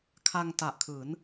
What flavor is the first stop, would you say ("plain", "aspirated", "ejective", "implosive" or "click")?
aspirated